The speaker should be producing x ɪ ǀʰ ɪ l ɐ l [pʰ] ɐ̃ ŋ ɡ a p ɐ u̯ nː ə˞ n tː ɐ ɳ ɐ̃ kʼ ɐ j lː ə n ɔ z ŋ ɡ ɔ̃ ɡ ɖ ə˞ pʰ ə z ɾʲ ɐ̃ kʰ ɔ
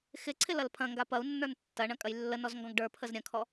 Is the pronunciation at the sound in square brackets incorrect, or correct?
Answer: correct